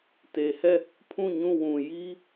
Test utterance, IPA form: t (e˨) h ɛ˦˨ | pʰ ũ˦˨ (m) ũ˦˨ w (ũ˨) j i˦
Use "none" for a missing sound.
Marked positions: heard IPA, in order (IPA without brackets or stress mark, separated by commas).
e˨, ɲ, ũ˨